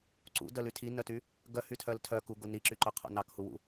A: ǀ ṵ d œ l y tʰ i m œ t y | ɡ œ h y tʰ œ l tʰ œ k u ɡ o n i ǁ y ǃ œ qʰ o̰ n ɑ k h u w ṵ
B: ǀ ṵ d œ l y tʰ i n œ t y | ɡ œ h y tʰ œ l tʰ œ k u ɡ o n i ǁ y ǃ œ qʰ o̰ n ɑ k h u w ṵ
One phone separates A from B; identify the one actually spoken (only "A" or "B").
B